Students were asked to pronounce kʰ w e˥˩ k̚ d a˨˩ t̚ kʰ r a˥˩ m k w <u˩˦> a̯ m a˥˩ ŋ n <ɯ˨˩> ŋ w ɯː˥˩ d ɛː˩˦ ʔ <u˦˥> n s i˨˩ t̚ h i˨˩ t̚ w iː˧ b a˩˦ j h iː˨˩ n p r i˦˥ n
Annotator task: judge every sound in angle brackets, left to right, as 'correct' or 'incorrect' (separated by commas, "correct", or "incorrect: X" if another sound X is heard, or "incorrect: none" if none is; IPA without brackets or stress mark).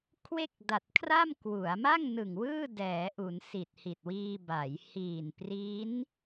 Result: correct, correct, incorrect: u˩˦